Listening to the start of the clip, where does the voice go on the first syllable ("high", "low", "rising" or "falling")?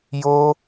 high